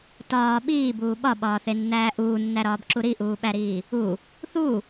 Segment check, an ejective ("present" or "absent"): absent